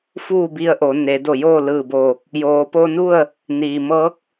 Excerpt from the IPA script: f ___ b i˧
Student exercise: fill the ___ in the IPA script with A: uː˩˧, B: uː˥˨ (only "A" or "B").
B